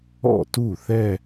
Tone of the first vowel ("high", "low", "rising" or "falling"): falling